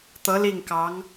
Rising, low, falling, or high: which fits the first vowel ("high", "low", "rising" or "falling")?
rising